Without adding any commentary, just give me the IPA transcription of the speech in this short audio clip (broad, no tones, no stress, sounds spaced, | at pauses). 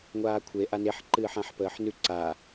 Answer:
ŋʷ aː kʷʰ e ʔ a n e ħ ǃ ɨː ħ ã ħ p əː ħ n ʉ ǀ a